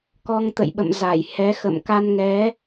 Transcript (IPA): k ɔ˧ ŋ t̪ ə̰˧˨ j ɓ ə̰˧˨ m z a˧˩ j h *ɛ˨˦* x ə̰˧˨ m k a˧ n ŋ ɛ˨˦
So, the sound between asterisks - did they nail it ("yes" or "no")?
yes